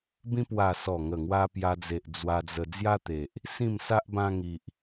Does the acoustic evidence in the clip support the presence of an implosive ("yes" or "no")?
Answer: no